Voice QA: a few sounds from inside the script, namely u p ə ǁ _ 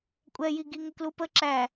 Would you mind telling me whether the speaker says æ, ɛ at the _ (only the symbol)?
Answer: æ